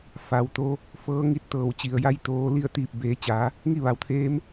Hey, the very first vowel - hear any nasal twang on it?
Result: no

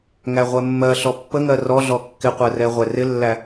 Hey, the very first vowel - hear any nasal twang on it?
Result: no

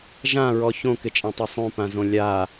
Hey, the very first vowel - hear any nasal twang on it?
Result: yes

